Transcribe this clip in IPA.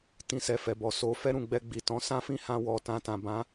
t ĩ˧ s ɛ˧ f ɛ˨ b ɔ˨ s o˨ f ɛ˧ ɾ ũ˨ ɡ͡b ɛ˧ ɡ͡b i˨ t ɔ̃˨˦ s ã˦ f ĩ˦˨ h ã˧ w ɔ˨ t ã˧ t ã˨ b ã˨˦

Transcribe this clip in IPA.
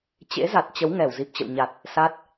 t͡ɕ ḛ˧˥ z a˨˩ t̚ t͡ɕ ə˨˦ w ŋ ɛ˧˩ w z i˨˩ p̚ t͡ɕ ə̰˧˨ w ɲ a˨˩ t̚ | s a˦˥ t̚

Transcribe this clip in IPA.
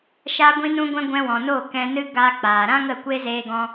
ʃ a˧ ɡʷ ĩ˧ n ũ˧ ɡʷ ɛ̃˧ ɡʷ ɛ̃˧ w ɔ̃˨ n o˦˨ k ɛ̃˧ n ɨ˦ ɡ aː˧ k͡p aː˨ ɾ ã˦ ŋ ə˦˨ kʷ e˦ z eː˧ ɡ ɔ̃˧

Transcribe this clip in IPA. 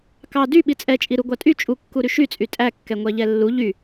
k ɑ d y ɓ i t͡sʼ ɛ t͡ʃʼ i ɾ u ɡʷ ɑ tʼ y t͡ʃʼ u kː u ɾ y ʃ y t͡sʼ y tʼ æ kː ɛ ŋʷ æ ʎ ɛ lː u ʎ y

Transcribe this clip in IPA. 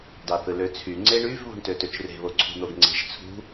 d ɑ θ ɯ l ø t͡sʰ y ŋ͡ǀ e ɳ y v β ṳ ɳ t ø t ø t͡ʃ r e̤ β o ǀʰ ṳ n̪ o ɡ ŋ͡ǀ e̤ ʒ t͡sʰ ṳ

